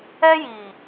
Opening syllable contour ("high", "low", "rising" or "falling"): high